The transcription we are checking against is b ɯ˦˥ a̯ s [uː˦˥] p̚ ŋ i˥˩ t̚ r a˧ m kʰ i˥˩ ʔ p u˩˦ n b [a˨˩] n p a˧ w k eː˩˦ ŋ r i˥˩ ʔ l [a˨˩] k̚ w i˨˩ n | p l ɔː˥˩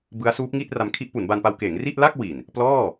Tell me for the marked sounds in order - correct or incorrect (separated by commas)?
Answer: correct, incorrect, incorrect